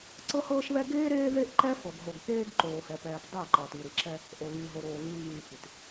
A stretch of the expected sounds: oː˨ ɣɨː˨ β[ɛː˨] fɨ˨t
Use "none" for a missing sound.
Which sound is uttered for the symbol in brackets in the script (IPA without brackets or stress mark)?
ɨː˨